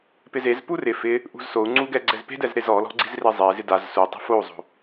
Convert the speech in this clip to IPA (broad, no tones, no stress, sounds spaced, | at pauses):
p ɪ z e z p u r ɪ f ɪ | ʔ ṳ z s o u̯ ŋ͡ǀ u ɡ ɛ ɡ͡ǀ ɛ z p e̤ d ɛ z ɾ e z ɔ l ɔ̤ ɡ͡ǀ i z r e zˤ e z ɪ d a z s u tˤ e̤ f o u̯ zˤ o̤